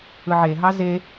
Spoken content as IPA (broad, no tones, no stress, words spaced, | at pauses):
ɯʕeɦɑ ze